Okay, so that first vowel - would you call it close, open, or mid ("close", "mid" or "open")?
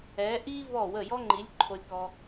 mid